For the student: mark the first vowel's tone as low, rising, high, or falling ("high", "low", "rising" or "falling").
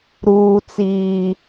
high